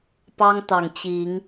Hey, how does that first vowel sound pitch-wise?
high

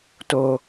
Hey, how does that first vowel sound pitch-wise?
low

